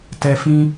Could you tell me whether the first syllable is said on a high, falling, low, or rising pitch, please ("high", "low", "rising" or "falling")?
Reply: low